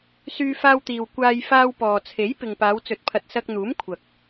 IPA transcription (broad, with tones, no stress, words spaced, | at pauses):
syː˧faː˧wt̪iː˨w kʷaː˧j faː˧wpɔː˨t͡sʰe˨˥j pɪ˨ŋpaː˨˧wt͡sɵ˨˥t̚pʰɐ˨t̚ sɐ˧k̚n̪uː˨˥m kʷʰɐ˨k̚